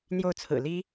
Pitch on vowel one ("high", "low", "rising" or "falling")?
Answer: falling